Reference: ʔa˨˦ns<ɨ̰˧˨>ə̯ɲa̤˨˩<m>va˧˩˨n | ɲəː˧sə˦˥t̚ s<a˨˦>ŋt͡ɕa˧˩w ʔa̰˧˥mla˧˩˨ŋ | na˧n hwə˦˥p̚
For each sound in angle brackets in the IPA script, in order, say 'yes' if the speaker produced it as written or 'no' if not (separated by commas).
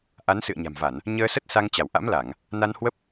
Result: yes, yes, no